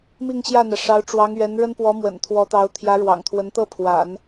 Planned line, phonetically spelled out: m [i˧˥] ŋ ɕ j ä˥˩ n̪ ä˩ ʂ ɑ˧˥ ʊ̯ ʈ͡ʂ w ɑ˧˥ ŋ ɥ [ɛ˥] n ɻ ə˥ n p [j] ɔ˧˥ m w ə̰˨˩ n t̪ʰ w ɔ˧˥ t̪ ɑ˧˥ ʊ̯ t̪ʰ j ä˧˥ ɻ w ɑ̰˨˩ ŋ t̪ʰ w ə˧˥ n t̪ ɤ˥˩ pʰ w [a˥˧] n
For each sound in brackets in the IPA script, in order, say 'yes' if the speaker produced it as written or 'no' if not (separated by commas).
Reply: no, no, no, no